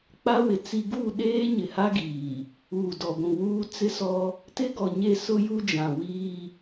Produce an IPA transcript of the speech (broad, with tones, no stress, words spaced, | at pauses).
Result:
k͡pa˦ wɪ˨ t͡si˦ ɡu˦˨ɗeː˦ ɲɪ˨ha˦ɡiː˨ | uː˨dɔ˨ɡʷũ˨ wuː˦ t͡sɪ˦sɔ˦ | tɪ˦ ɡɔ˨ɲe˦˨ sʊ˦ju˦d͡ʒã˨ wiː˦